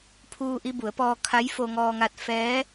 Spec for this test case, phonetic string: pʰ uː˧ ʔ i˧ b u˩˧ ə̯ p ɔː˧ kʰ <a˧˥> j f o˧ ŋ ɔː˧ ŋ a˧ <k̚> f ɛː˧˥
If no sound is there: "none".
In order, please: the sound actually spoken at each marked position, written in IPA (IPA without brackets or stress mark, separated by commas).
a˧˥, t̚